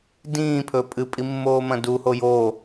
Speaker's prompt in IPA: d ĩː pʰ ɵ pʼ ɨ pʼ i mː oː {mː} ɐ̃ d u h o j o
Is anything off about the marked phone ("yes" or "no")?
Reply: yes